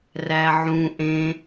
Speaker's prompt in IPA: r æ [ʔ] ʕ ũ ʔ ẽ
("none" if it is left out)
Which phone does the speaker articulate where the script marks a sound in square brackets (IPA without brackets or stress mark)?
none